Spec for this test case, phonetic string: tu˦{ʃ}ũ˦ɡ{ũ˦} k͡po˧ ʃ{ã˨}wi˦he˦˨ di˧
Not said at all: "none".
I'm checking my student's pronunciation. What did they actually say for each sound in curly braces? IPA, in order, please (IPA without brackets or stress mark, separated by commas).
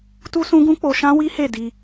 s, ũ˦, ã˦